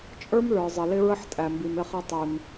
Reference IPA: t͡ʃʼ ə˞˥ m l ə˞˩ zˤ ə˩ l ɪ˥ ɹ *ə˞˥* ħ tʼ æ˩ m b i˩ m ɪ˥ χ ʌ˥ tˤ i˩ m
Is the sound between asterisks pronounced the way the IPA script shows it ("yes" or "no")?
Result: no